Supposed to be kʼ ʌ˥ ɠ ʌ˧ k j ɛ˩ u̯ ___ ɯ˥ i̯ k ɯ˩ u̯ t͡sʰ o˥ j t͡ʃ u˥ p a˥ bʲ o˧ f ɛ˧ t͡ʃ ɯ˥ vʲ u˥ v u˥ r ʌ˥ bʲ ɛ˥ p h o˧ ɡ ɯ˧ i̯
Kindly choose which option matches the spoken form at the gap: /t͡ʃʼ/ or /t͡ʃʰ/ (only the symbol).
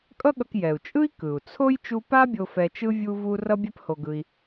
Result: t͡ʃʼ